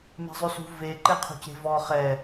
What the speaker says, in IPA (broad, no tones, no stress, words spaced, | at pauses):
me̤zˤʉsṳ ve ǃeqʰṳce̤vɔ χɛ